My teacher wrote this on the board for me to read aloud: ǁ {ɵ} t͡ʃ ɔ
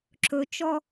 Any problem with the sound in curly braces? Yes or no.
no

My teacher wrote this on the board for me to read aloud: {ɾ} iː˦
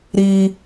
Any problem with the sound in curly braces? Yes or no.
no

